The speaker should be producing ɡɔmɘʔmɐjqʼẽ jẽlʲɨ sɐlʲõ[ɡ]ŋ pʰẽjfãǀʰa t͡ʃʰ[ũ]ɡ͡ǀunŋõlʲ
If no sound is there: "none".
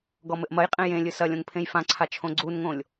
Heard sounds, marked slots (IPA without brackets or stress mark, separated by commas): none, õ